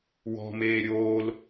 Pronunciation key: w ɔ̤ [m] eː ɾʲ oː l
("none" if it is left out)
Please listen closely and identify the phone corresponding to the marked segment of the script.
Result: m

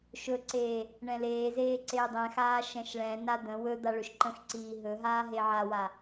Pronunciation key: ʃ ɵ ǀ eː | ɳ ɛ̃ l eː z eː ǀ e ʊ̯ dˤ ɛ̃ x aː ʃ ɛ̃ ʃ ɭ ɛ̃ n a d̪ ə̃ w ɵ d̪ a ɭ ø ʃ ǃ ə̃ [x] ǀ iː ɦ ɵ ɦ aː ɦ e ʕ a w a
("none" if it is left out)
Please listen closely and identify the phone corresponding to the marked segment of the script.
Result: x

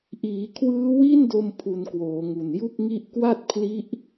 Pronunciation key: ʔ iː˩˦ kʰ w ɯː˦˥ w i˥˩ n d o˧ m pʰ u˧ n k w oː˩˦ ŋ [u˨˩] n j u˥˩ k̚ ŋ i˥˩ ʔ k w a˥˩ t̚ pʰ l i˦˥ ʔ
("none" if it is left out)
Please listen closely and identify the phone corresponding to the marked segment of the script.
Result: u˨˩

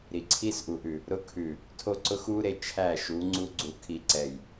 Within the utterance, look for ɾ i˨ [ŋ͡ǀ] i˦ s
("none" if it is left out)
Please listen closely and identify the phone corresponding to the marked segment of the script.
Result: ǀʰ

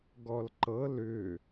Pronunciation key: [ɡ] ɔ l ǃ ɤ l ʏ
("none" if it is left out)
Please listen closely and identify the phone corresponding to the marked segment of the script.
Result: ɡ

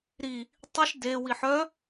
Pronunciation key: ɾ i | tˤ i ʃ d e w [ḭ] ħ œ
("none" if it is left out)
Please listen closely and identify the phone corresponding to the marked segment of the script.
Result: i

